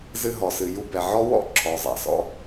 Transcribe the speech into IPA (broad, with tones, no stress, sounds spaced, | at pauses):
z ɨ˧ ɦ ɔ˨ s ɨ˨ j u˧ b ɛ˨ ʕ ɔ˦ w ɔ̰˦ ǁʰ ɔ˨ zˤ ɛ̰˨ s ɔ̰˦